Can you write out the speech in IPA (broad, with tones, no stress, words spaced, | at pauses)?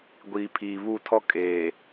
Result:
ɡʷiː˨pʰiː˨βu˦˨tʰɔ˦ kʼeː˨